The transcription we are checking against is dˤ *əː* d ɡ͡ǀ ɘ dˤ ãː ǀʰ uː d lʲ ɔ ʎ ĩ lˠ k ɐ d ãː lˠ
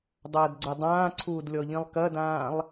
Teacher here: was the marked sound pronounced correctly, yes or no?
no